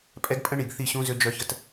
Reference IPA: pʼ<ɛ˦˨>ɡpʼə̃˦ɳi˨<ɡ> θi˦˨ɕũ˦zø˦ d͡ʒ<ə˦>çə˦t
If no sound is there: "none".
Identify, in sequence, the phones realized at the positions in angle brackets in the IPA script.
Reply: ɛ˦, ɡ, œ˦

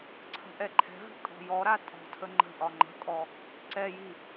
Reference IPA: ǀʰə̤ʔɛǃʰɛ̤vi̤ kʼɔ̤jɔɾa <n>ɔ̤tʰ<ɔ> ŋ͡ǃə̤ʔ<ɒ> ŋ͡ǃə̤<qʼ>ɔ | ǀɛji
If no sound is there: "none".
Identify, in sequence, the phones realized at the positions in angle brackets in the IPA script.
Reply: tʼ, ə, ɒ, kʼ

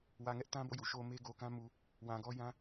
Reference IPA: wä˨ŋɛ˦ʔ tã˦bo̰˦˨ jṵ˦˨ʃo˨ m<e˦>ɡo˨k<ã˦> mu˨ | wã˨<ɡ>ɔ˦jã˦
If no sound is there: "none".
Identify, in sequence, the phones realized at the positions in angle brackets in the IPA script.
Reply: e˦, ã˦, ɡ

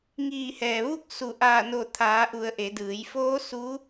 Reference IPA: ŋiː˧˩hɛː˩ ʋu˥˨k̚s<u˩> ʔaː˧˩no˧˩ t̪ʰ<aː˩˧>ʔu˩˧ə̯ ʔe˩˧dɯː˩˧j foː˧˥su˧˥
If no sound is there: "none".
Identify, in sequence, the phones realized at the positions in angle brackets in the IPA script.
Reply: u˧˩, aː˩˧

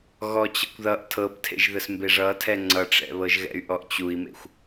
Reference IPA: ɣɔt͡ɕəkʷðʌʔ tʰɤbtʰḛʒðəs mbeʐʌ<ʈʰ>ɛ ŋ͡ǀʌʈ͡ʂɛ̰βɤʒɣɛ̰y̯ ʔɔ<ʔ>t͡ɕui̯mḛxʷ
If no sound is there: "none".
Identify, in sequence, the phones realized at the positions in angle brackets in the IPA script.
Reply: tʰ, ʔ

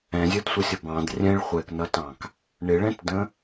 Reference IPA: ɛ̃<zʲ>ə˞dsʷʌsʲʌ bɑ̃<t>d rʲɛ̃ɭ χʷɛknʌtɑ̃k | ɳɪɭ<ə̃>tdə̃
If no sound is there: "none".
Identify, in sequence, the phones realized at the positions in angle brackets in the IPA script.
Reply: zʲ, none, ɛ̃

